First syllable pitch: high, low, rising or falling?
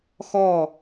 falling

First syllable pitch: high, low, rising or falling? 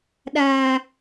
low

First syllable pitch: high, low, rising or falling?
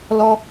high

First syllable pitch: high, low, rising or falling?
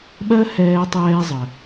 high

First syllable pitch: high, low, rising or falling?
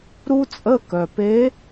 high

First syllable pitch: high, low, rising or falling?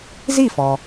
falling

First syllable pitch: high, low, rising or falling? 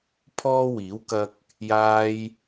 high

